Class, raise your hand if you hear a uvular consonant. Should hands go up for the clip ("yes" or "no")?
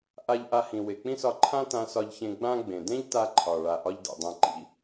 no